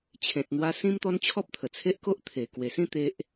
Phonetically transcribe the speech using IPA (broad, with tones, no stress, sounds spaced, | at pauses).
t͡ɕʰ ẽ˨ t̚ n̪ w a˧ s ĩ˦ m t̪ ɔ˦ n t͡ɕʰ ɔ˦ p̚ t̪ʰ ə˨˩ t͡sʰ e˦ ʔ k o˦ ʔ t̪ʰ e˨˩ k w e˨˩ s ĩ˥˧ t̪ e˦ ʔ